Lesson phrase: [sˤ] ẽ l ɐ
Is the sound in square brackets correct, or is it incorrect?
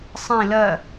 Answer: correct